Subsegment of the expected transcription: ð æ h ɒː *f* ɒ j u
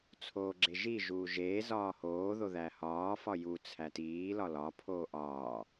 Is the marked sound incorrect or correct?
correct